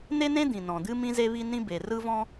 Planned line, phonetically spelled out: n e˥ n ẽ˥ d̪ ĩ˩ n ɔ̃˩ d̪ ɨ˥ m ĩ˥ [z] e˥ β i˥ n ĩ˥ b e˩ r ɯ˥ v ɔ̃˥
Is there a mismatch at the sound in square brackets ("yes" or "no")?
no